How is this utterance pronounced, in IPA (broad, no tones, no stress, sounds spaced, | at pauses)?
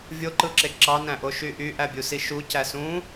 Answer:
vʲ o ǃ ɯ ǁ e ǁ ɑ n æ̃ ʔ o ʃ y ʔ y ʔ æ bʲ u s i ʃ u c æ s ũ